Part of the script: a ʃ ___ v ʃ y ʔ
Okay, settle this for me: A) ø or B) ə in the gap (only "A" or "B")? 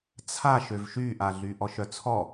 A